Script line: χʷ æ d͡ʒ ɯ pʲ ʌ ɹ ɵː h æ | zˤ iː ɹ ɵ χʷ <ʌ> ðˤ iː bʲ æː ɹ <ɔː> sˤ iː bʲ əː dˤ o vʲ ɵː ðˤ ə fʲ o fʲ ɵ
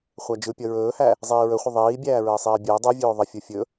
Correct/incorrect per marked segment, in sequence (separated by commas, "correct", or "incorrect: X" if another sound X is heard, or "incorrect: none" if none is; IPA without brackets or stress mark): incorrect: ə, incorrect: əː